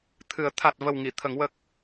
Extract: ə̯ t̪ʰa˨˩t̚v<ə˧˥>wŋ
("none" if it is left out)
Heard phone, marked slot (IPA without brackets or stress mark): ə˨˩